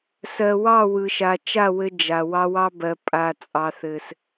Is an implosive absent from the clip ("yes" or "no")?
yes